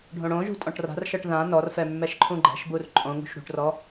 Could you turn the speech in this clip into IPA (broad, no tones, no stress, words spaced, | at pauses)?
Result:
ɖʱõɽõʒṳ tʼɔ̃ʈra̤rʃɤʈ ðã nɔrfɛ mːɛʃǃʰũɡ͡ǃɛ̤ʃbur ǃʼõŋṳʃ ɽṳʈrɔ